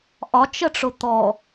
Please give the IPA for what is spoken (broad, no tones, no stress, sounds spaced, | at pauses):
ʔ ɒ t͡ʃ ə ʈ͡ʂ ʊ t̪ ɔ